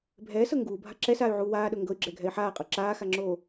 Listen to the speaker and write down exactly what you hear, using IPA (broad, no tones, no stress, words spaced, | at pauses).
bʱɛːsɤ ŋɡuːbʱa ǁɛsaːy̯ʕuː waːɗɤ ŋɡɤy̯ɡ͡ǁɛɡʱɛi̯ ħaːqʼɤ ǁaːxaŋ͡ǁoː